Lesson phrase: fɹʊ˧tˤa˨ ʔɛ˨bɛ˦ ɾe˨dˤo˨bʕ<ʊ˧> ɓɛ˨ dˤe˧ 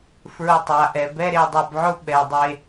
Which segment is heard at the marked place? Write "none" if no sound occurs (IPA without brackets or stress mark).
ʊ˧